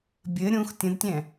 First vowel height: mid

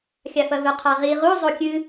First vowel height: low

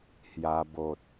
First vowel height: low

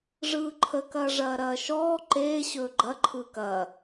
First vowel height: high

